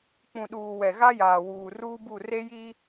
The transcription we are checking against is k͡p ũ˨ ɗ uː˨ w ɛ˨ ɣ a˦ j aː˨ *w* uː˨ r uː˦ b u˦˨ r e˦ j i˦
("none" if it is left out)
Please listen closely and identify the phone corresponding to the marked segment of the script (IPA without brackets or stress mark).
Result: w